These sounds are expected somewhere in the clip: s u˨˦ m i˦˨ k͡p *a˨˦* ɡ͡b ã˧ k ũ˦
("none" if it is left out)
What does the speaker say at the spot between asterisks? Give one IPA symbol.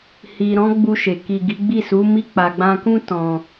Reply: a˨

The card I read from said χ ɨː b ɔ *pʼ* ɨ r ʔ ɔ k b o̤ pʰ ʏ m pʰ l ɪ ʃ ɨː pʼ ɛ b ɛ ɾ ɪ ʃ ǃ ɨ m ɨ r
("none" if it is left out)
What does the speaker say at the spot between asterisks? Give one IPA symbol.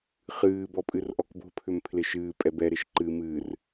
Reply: pʼ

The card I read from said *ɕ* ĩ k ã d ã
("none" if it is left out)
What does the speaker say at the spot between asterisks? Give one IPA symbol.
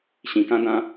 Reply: ɕ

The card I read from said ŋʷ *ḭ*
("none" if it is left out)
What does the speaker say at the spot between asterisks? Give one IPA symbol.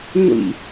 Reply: ḭ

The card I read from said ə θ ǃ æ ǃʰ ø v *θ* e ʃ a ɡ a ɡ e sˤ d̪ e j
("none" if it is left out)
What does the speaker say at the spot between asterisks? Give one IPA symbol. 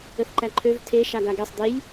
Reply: tʰ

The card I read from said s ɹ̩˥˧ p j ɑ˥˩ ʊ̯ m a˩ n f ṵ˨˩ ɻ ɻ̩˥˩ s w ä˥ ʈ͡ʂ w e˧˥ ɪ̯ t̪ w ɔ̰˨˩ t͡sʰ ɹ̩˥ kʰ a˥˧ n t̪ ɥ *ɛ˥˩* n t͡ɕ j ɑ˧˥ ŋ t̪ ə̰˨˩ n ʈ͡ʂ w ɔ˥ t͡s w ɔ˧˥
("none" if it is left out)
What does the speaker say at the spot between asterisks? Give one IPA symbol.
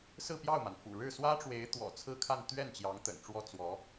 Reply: ɛ˥˩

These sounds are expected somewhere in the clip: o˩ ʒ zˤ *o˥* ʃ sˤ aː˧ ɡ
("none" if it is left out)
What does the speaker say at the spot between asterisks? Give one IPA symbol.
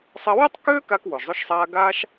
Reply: o˧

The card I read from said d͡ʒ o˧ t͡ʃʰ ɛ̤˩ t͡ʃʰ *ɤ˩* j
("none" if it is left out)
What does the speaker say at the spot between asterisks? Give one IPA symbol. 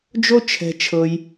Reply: ɤ˩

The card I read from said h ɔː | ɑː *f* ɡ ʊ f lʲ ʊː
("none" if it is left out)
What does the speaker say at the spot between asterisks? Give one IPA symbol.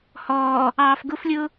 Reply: f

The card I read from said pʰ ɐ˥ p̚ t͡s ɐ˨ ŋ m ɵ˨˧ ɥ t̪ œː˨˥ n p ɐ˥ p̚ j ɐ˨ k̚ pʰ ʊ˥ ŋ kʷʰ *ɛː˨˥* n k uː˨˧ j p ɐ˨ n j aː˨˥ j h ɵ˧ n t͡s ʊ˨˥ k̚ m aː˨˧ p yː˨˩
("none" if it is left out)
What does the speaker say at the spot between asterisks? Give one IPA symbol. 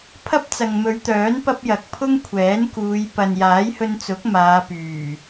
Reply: ɛː˨˥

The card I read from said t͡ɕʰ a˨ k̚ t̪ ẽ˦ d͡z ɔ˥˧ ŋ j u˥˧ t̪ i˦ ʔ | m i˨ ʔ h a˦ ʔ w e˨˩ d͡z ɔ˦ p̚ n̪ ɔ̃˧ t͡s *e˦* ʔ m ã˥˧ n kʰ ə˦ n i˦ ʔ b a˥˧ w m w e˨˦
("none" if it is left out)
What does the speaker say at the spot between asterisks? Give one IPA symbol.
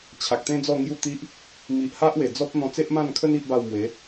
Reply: e˦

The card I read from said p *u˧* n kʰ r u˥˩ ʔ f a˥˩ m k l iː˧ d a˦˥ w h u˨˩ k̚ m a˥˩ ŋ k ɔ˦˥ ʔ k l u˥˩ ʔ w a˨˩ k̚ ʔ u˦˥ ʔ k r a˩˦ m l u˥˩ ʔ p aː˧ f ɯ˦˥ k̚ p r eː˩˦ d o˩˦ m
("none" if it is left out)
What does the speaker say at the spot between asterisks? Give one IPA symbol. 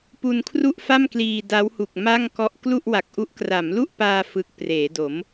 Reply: u˧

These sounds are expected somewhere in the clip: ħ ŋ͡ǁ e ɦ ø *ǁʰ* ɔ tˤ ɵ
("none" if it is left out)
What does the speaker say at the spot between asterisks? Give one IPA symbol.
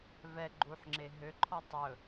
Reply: ǃʰ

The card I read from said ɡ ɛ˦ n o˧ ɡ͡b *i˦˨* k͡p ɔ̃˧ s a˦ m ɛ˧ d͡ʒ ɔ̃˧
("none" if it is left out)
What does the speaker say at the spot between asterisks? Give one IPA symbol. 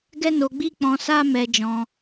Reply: i˦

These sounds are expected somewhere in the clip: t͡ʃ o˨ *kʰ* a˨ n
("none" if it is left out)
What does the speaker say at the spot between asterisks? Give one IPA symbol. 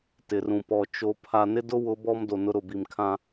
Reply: pʰ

